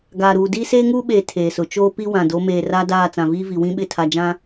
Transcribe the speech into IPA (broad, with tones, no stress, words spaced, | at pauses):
ɡaː˨ɾuː˨ diː˦seː˦ŋuː˦ɓeː˨ tʰeː˨sʊ˨ t͡ʃoː˦ pi˦ wã˨do˨˦ meː˨ra˦daː˦˨ t͡sã˨viː˦vi˨ wĩ˦ɓɪ˦˨tʰa˨ d͡ʒã˦